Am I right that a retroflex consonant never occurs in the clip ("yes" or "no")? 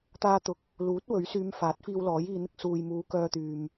yes